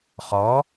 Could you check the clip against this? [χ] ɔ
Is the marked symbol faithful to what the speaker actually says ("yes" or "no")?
yes